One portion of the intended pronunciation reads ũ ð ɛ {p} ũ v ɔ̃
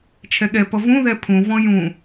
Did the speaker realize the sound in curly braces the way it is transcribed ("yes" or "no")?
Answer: no